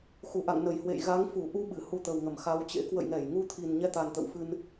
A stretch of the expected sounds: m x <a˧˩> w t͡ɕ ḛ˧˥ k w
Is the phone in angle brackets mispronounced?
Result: yes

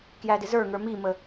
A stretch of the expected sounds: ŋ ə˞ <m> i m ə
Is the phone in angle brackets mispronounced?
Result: no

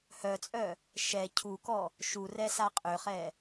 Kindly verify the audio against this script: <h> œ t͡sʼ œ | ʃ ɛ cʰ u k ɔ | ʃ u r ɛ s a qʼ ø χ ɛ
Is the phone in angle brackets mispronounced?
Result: no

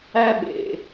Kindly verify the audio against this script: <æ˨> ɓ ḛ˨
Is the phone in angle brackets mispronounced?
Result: yes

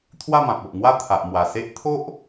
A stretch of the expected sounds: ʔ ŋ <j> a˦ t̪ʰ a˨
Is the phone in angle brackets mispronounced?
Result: yes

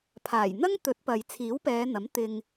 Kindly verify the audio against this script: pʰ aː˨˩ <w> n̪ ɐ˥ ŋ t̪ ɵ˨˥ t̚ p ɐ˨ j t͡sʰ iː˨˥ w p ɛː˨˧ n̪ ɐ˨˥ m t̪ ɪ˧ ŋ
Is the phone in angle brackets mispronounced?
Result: yes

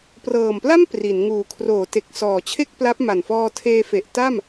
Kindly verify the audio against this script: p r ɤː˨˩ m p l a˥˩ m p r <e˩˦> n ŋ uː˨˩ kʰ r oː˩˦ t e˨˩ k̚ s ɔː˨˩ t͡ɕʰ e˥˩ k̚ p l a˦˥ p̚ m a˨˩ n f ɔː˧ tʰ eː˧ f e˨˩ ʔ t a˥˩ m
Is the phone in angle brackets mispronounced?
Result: yes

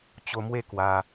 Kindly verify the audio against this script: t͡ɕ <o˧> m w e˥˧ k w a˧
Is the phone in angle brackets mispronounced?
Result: no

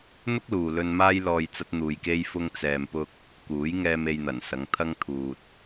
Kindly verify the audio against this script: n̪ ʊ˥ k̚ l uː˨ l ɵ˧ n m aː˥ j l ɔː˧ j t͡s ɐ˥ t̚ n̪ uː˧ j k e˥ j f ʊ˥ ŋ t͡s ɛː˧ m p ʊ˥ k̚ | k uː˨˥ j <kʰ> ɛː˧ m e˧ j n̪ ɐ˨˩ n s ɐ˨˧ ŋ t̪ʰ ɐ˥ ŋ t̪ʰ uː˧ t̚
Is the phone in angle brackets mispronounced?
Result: yes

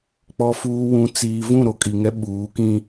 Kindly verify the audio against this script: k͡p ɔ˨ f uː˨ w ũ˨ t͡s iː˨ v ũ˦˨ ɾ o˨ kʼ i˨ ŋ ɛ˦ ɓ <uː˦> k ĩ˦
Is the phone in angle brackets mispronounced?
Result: yes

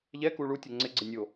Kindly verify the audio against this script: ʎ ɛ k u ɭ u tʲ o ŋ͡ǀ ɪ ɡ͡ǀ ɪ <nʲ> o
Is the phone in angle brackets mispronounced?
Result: no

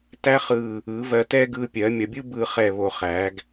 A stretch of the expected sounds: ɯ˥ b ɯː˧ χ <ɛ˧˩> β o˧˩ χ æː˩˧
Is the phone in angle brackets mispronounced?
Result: no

